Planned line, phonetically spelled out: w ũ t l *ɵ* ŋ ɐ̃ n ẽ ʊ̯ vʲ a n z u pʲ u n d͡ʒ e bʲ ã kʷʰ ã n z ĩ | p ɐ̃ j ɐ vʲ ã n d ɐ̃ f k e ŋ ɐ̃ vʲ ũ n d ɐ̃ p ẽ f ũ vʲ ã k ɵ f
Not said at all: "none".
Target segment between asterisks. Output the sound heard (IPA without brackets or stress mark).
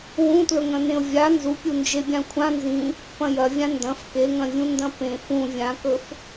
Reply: ɵ